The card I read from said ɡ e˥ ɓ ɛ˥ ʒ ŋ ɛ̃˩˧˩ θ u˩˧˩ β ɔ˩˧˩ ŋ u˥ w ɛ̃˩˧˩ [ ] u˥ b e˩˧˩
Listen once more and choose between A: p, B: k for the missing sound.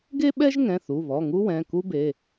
B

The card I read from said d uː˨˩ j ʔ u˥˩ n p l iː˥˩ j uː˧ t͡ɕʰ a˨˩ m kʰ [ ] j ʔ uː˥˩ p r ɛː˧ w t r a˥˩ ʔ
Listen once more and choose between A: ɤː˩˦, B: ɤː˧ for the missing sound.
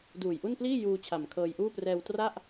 B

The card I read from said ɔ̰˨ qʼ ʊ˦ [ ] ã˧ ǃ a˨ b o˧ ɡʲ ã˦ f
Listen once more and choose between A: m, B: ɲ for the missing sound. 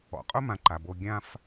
A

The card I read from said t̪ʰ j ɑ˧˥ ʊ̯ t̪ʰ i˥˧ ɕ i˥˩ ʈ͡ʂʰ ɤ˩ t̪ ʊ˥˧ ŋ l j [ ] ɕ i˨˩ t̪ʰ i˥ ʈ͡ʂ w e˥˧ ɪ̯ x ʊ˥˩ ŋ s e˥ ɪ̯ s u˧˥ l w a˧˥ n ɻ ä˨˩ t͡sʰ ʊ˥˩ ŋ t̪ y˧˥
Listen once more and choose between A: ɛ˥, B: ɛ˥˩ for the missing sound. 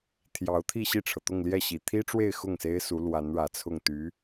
B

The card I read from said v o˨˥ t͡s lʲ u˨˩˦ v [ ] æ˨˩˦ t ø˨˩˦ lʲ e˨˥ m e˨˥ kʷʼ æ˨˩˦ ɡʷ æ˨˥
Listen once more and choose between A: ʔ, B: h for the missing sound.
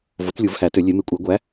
B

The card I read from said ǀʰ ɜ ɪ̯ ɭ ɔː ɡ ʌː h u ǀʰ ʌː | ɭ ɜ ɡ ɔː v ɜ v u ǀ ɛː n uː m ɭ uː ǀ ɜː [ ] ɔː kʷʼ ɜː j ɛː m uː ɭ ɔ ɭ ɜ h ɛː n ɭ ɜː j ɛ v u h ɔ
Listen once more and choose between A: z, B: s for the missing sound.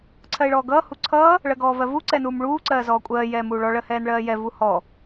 A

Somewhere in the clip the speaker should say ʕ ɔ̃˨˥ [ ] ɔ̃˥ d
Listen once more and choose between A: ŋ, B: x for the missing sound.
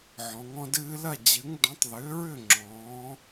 A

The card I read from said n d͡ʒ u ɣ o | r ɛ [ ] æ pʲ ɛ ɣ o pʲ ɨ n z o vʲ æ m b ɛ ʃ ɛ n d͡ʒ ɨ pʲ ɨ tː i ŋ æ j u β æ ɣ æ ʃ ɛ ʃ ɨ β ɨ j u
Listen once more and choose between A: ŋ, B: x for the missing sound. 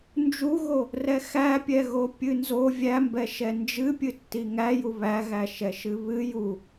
B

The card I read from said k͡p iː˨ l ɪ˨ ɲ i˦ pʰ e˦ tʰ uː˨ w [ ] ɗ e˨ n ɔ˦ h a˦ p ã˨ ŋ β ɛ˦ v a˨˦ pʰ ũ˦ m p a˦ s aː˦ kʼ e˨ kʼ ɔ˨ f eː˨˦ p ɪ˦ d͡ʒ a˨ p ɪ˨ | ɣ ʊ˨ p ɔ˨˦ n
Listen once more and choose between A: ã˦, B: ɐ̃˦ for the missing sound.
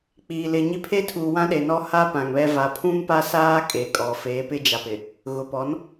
A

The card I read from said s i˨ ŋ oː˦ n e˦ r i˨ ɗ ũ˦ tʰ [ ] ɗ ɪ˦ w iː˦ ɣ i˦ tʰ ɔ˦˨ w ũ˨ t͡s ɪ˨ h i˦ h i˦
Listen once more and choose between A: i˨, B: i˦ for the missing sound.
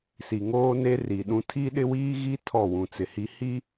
B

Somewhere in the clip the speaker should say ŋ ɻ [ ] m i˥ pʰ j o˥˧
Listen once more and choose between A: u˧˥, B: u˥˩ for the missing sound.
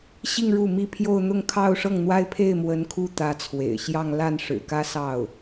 B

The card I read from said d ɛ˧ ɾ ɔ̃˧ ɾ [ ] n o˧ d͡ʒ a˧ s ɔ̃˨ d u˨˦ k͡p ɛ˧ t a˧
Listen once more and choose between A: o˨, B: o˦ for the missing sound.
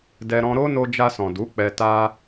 B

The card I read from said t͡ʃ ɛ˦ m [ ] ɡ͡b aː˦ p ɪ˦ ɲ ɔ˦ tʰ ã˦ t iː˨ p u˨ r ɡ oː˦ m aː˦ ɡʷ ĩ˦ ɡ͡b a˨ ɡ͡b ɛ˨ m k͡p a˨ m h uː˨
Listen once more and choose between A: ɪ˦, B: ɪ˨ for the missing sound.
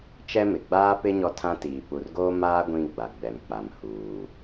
B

